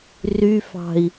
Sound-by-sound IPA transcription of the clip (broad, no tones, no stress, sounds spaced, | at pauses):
r y f ɑ̤ i̯